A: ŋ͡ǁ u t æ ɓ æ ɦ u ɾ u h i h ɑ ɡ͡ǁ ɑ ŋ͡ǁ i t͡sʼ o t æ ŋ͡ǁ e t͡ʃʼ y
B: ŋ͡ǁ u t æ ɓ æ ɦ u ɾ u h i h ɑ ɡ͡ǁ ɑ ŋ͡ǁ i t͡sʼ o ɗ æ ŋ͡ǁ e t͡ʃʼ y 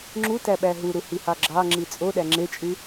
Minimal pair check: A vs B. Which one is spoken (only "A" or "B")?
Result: B